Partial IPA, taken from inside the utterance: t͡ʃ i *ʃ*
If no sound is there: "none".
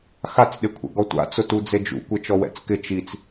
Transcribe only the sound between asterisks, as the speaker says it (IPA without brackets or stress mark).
t͡s